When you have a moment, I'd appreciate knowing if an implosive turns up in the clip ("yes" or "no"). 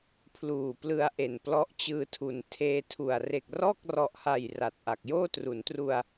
no